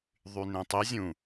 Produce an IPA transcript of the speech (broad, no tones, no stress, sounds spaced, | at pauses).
ðˤ y n ẽ tˤ i zʲ ũ